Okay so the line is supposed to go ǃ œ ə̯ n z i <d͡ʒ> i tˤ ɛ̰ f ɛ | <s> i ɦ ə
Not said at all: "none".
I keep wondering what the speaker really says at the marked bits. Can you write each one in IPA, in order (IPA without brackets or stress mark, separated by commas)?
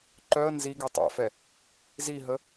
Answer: ɡ, z